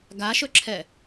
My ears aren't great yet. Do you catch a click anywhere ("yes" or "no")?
yes